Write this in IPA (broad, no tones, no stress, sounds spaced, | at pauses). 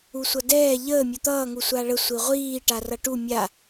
u sʷ ʌ d ɛː ʎ əː mʲ u t̪ ʌː ŋ u sʷ a ɭ ə sʷ i ʁʷ iː ʈ a r ʌ ʈ u mʲ a